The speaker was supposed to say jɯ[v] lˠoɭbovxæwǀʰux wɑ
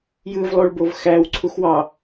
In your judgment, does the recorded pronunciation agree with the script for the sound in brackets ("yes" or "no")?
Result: yes